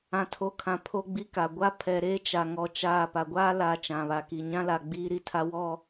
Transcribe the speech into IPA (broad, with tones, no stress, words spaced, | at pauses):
ã˨tʰo˨kʰã˨ pʰo˦ɡ͡bi˦ka˨ ɡʷa˦pʰɛ˨ɾeː˦ t͡ʃa˨ŋɔ˦˨t͡ʃaː˦˨ pa˨ɡʷaː˦laː˨ t͡ʃã˨βa˨ ki˨ɲã˦la˨ ɡ͡biː˦ɾi˦ tʰa˦wɔ˦˨